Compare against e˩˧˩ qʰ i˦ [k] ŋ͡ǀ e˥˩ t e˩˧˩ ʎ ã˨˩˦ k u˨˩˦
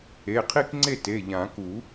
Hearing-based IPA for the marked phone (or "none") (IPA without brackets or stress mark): k